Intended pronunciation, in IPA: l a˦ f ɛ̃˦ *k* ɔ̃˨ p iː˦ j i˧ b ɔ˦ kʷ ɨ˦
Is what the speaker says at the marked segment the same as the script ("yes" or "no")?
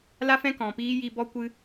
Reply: yes